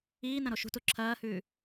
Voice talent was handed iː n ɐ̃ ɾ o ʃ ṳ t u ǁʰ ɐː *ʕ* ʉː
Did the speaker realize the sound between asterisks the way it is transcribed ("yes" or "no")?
no